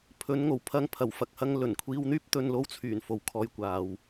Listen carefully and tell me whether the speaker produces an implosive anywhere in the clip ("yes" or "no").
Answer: no